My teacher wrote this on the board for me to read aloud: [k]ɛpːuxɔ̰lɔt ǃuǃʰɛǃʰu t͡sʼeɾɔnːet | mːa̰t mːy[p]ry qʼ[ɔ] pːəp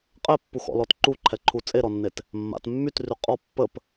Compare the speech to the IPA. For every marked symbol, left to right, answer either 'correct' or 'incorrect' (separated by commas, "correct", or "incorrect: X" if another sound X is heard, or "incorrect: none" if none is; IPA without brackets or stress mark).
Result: incorrect: qʼ, incorrect: t, correct